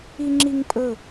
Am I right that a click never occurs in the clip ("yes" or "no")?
no